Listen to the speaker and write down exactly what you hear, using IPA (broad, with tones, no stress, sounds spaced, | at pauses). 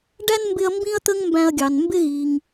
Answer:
ɖ æ˥ n m b ɪ˦ ɐ̯ m b ĩ˥ ɐ̯ t̪ ə˥ ŋ m b æ̃˦ ɐ̯ ɡʲ ɑ˨ n m b ɪ˦ ɣ i˨ ŋ